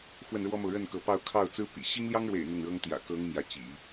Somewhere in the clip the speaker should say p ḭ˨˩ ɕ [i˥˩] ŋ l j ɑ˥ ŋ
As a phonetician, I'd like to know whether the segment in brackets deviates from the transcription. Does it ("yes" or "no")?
yes